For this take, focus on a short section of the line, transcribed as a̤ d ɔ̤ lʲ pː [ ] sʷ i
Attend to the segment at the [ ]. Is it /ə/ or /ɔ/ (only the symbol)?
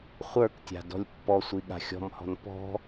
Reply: ɔ